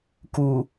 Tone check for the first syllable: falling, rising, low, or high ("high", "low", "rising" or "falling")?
low